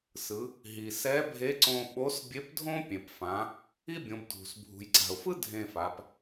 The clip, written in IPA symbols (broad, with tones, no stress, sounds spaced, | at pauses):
s ɯ˩˧ | ɦ i˩ s ɛ˧˥ bʱ e˧˥ ǀ õ˧ ɓ o˧˥ s bʲ e˧˥ p dʱ õ˥ pʲ ẽ˩ p f ã˩˧ | i˥ bʲ õ˩˧ b dʱ ṳ˩ s bʱ ṳ˩ j ǀ a̤˩ ʊ̯ f ɯ˥ dʱ ẽ˧ f a˩˧ p